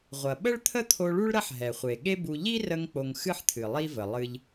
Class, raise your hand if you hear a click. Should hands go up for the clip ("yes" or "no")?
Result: no